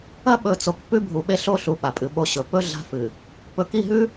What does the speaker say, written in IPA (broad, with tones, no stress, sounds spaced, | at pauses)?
ɐ˦ ɓ ɵ˨ t͡s o˨ k p ʉ˦ bʱ u˨ ɓ e˦ ɬ o˦ ɬ u˨ ɓ a˨ pʼ ɨ˨ ɓ o˦ ɕ ɵ˨ p ɵ˦ ɮ a̤˦ f ɨ˨ | p ɵ˨ k i˦˨ ɦ ʉ˦